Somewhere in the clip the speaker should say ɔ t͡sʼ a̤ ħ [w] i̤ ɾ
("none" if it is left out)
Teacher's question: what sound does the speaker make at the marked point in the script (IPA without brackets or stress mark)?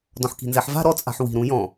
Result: w